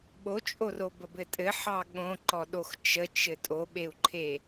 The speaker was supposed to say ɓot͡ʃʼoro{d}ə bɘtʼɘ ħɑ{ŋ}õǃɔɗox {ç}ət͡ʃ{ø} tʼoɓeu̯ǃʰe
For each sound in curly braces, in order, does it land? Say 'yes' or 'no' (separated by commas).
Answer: no, no, no, no